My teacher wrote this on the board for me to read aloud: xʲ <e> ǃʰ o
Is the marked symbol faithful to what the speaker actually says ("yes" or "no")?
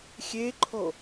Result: yes